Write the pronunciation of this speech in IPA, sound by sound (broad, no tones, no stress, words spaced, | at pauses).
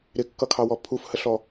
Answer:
ɾɪkːʌkʰɑwɔ pʰufhəɬɔ